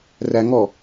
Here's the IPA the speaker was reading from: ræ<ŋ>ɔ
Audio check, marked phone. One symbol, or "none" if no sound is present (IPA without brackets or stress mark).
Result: ŋ